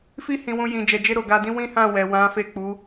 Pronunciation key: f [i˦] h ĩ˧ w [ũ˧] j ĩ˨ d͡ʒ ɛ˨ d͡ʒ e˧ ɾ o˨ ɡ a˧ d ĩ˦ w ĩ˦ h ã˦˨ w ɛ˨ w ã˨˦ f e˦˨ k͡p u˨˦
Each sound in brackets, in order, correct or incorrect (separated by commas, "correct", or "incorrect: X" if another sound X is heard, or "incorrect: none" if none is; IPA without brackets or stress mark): correct, correct